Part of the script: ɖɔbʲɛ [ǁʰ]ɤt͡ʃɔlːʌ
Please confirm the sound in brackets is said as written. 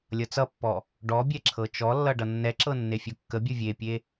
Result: yes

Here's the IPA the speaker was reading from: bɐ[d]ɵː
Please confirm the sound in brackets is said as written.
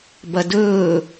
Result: yes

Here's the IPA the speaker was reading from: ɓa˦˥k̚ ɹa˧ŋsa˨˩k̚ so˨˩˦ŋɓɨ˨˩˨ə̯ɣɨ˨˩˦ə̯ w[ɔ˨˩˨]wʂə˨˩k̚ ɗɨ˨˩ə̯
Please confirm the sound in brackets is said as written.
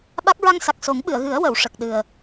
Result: no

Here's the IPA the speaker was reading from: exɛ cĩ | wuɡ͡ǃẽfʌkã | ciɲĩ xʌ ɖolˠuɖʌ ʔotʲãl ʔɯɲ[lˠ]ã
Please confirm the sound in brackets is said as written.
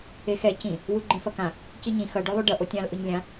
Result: no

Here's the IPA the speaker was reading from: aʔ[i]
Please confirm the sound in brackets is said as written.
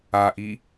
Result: yes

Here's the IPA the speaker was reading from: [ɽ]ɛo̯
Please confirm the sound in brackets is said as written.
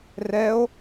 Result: no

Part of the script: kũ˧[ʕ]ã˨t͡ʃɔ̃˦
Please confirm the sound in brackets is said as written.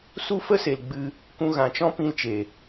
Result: no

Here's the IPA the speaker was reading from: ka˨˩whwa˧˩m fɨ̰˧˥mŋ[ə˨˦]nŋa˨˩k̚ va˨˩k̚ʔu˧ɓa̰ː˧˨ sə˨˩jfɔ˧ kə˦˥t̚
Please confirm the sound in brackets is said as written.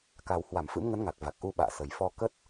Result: yes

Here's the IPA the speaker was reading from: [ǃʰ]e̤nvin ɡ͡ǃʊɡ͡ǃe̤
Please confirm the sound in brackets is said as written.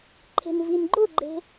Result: yes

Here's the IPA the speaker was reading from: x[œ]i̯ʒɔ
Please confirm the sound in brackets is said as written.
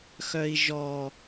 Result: yes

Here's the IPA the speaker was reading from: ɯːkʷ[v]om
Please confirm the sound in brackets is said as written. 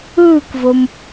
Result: yes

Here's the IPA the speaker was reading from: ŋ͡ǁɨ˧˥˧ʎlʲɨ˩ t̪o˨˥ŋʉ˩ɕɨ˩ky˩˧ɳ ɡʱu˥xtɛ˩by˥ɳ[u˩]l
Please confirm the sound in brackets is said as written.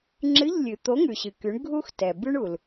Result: yes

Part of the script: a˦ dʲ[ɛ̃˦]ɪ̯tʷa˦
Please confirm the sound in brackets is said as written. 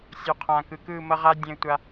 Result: yes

